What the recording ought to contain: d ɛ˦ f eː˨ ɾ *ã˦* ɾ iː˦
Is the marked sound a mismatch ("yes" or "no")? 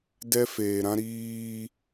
no